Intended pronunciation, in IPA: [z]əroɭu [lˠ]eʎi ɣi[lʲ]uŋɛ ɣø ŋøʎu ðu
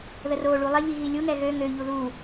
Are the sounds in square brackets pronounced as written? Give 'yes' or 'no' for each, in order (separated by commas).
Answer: no, yes, yes